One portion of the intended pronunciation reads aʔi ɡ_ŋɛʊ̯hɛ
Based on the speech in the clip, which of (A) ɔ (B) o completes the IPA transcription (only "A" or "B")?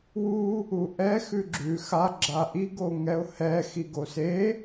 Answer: B